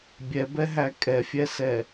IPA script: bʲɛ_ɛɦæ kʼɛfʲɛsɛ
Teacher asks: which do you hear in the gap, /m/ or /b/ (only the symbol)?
b